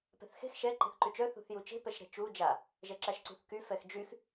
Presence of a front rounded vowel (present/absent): present